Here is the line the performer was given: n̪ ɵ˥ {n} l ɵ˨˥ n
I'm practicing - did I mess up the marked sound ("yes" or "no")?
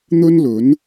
no